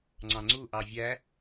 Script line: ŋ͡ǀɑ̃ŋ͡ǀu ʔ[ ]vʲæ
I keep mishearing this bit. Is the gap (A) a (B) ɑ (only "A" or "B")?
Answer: B